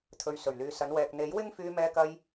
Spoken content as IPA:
t̪ʰ ɵ˨ ɥ s ɵ˨˩ ɥ l yː˨ s ɐ˨˧ n w ɛː˨ k̚ n̪ e˨˥ j w ɪ˥ ŋ f yː˧ m ɛː˧ k ɐ˧ j

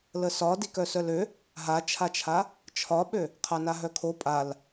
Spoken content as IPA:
l ə s ɒ d i k œ s œ l ø | ɦ a t͡ʃʰ a t͡ʃʰ a | t͡ʃʰ ɒ ɓ ø | qʰ a n a ɦ œ kʰ o pʼ a l

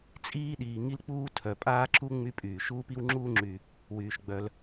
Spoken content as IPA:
t͡sʼ iː˦ ɗ iː˩ ŋ i˥ l k͡p uː˥ tʰ œ˩ pʼ aː˦ ǁ u˥ ŋ͡m y˦ pʼ yː˩ ʃ uː˥ p i˥ w ŋ͡ǁ uː˥ ŋ͡ǁ y˨ | w yː˩ ʃ ɡ͡b œ˨ l

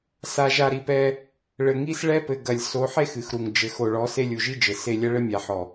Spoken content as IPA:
s a˨ ʒ a˨ ɾ i˨ p ɛ˦ | ɭ ɘ˨ ŋ i˦ s ɭ ɛ˦ p ɘ˨ ɡ ɐ˨ lʲ s o˨˦ ħ e˦ x ɨ˨ x ɾ u˨ ŋ d͡ʒ ɘ˨ x o˨ ɭ ɔ˨˦ s e˦ lʲ u˨ ʒ i˦ d͡ʒ ɘ˨ s e˦˨ lʲ ɐ˦ ɭ ɘ˦ mʲ a˨ ħ ɔ˨

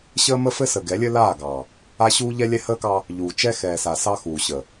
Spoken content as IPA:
ɕ əː˦ m ə˦ f ɘ˦ s ə˨ ɡ ɛ˨˦ lʲ ɘ˦ l aː˦˨ ɡ ɑ˨ | a˦ ɕ uː˦ ʎ ɛ˦ lʲ ɛ˦ h əː˦ k ɑ˦ | ʎ uː˨ t͡ʃ ɛ˦ x ɛː˨ s a˨ s ɑ˦ x uː˨ ɕ ə˨

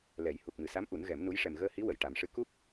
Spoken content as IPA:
l ɛ˨˩˦ j h u˨˩ k̚ m ɨ˨˩ s a˧˥ m ʔ u˨˩˦ n ɣ ɛ˨˩˦ m n u˧˥ j ʂ ɛ˨˩ m ɣ əː˧ h i˧˥ w ə˨˩˨ j ʈ a˨˩˦ m ʂ ɨ˧˥ k u˦˥ p̚

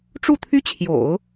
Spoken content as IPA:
ʈ͡ʂ u˥˩ t̪ʰ y˥ t͡ɕʰ j o̰˨˩˦ ʊ̯

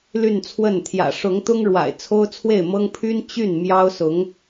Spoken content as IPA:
l y˥˧ n t͡sʰ w ə˥˩ n t̪ʰ j ä̰˨˩ ʂ ʊ˧˥ ŋ t̪ ʊ˥ ŋ ɻ w a̰˨˩ ɪ̯ t͡sʰ o˥ ʊ̯ t͡sʰ w e˥˩ ɪ̯ m ɤ˥ ŋ pʰ y˥ n t͡ɕ y˥˩ n m j ɑ˥ ʊ̯ s ʊ˧˥ ŋ

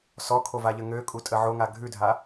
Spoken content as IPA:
s ɔ kʰ o v a ʎ ə ŋ ø kʼ u tʼ ə ʕ o ŋ a ɡʱ ʉ dʱ a

